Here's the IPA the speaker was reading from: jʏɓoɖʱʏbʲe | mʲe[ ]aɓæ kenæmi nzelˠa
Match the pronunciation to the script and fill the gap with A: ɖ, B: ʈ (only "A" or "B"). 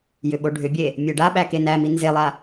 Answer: A